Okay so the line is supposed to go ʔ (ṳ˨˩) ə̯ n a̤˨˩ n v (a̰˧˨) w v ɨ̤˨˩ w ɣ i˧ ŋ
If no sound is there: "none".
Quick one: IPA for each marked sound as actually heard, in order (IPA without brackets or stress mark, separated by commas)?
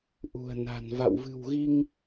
ṳ˨˩, a̰˧˨